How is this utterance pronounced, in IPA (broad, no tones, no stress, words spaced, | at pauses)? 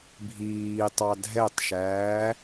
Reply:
bʱiːtˤɑ dʱɛtˤʃæː